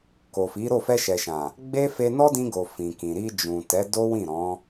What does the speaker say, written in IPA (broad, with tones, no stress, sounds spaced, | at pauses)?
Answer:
k o˨ f i˨˦ ɾ o˦˨ f ɛ˧ ʃ ɛ˨ ʃ ã˨ | ɡ͡b e˦ f e˧ n ɔ˦ d ĩ˧ ɡ o˨ f ĩ˨ k ĩ˨ ɾ i˧ d͡ʒ ũ˨ t ɛ˨˦ d o˦ w ĩ˦˨ ɾ ɔ̃˨˦